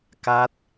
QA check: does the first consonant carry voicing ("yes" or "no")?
no